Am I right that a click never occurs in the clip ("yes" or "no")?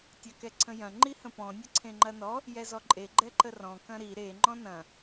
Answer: no